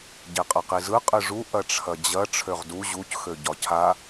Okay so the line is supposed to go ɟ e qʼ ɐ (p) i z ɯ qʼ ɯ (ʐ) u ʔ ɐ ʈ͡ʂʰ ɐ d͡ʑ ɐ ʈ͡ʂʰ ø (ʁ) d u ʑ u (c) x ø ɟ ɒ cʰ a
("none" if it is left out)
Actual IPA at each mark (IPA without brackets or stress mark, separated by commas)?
q, ʐ, ʁ, c